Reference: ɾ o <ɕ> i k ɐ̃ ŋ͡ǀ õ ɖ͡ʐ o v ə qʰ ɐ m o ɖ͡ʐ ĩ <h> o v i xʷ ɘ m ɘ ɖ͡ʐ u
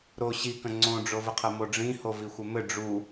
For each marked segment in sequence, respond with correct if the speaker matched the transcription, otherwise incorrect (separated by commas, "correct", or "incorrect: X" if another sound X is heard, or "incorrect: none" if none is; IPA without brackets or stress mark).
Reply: correct, correct